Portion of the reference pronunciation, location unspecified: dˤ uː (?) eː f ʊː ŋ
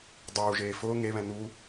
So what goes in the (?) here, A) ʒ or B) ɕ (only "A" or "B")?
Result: A